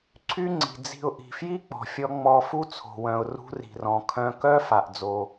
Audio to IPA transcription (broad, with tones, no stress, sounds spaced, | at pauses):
ǀʰ y˥ ŋ͡ǀ i̤˩ d͡z i̤˧ ʊ̯ ʔ i̤˩ f j i˥ k͡p ɔ̤˩ fʲ ɔ˧ ŋ͡m ɔ˧ f u˥ t͡sʰ o̤˩ w œ̃˩ ʊ̯ r ṳ˧ r i̤˩ r ɔ̃˩ kʰ œ̃˧ k œ˥ f a˩ ʔ d͡z o˩